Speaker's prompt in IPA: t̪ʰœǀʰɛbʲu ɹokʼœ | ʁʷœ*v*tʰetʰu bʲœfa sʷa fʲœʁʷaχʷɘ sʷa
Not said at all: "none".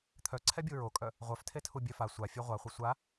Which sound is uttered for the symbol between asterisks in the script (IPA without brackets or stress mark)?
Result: f